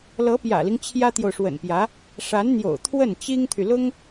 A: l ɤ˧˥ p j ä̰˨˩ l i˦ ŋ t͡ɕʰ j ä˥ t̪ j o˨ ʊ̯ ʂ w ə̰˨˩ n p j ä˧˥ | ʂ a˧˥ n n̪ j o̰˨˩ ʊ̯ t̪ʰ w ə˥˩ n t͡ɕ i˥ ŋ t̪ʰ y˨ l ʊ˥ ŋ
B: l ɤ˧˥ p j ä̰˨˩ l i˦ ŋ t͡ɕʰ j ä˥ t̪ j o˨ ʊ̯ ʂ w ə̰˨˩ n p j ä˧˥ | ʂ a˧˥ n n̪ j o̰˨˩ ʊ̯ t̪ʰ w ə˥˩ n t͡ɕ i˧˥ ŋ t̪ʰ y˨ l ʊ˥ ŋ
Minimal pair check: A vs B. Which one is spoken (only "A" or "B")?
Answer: A